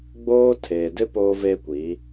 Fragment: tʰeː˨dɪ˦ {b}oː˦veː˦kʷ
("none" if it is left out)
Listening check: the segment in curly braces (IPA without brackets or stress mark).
p